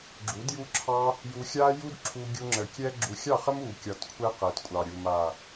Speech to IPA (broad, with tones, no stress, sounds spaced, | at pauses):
ɡ͡ǁ u˨˦ d j u˦ ǁʰ ɑ˦ | j u˧ xʲ a˦ j u˦ d ǁʰ u˧ ɡʲ u˧ ŋ͡ǁ ə˨ kʲ ɛ˦ ɡ͡ǁ u˧ xʲ ɑ˦˨ χ ə˦ m u˨ kʲ ɒ˨ t kʷʰ ɛ˧ q ɛ˨ t kʷʼ ɑ˨ ɾʲ u˨ m a˨